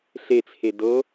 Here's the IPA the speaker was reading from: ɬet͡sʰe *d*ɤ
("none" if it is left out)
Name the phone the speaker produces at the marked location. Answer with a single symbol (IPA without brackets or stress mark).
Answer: d